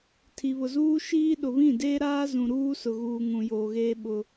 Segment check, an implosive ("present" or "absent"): present